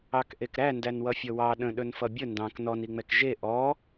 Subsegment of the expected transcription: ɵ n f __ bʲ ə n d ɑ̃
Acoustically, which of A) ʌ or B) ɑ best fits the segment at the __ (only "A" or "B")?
A